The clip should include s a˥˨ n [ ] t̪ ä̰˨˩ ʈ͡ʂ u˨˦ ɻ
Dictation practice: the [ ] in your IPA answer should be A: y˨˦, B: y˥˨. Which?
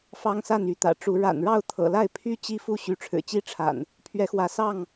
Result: A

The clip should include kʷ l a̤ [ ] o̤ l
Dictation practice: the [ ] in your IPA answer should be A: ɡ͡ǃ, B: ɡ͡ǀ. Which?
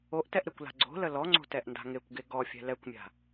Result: B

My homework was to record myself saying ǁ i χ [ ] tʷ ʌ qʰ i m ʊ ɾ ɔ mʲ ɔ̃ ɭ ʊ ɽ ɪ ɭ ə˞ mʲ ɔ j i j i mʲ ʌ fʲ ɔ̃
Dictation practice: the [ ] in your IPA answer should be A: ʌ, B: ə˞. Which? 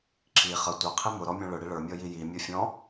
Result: A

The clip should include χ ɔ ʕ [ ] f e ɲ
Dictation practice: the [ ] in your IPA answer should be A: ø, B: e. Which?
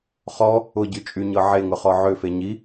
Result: A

